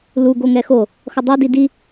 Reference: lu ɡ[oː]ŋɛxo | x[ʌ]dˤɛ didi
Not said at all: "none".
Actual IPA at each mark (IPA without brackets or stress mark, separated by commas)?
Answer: o, ʌ